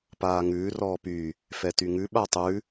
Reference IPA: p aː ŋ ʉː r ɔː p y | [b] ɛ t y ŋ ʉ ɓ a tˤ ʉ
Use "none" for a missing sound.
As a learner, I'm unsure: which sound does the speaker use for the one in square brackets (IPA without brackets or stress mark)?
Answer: f